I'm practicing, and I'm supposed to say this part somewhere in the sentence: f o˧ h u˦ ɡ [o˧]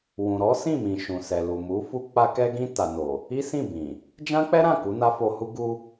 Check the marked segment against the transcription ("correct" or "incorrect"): incorrect